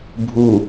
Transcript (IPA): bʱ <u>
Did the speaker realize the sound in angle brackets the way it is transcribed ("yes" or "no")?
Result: yes